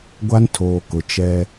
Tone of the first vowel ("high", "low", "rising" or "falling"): high